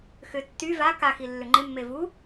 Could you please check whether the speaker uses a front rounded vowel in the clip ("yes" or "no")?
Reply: yes